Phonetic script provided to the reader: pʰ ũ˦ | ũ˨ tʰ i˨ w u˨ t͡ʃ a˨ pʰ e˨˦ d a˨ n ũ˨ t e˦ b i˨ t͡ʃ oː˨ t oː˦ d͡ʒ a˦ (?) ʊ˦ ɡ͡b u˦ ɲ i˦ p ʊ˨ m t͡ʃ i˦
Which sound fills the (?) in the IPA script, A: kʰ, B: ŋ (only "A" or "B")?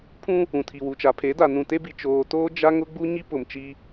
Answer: B